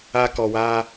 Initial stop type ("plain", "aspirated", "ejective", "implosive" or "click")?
plain